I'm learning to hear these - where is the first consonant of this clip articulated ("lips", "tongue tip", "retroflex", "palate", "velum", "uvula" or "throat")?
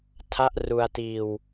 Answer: tongue tip